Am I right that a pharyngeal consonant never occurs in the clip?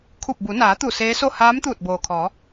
yes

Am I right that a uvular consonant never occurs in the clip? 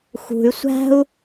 yes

